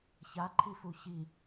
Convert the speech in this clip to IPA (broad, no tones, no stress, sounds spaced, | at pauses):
ç a ǃʰ i f u ç i